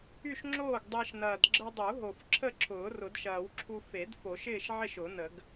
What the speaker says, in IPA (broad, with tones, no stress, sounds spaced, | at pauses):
y˥˨ ʃ ŋ͡ǁ oː˥˨ ɡ dˤ ɪː˧ ʃ n ɐː˨˩ d ɡ͡ǁ ə˧ dˤ u˨˩˦ ɦ o˨˩ f ǁʰ ə˥˨ ǁʰ ʊː˨˩˦ r ʊ˨˩˦ d ʃ ɐː˨˩˦ w ǁʰ u˧ f e˨˩˦ d f o˨˩˦ ʃ ɪː˥˨ ʃ ʕ ɪ˥˨ ʃ ʊ˨˩˦ n ə˨˩˦ ɡ